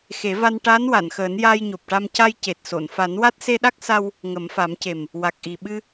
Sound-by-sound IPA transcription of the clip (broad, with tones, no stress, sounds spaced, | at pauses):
x e˨˩˦ v a˧ n ʈ aː˧˥ n w a˨˩˨ n x əː˨˩˦ n j aː˧ j ɲ o˨˩ p̚ ʈ a˧ m c a˧ j c e˨˩ t̚ s o˨˩˨ n f a˨˩˦ n w a˦˥ t̚ s e˧ ɗ a˦˥ k̚ s a˧ w | ŋ ə˨˩˦ m f a˨˩˦ m c e˨˩ m | w a˨˩ k̚ ʔ i˨˩ ɓ ɨ˧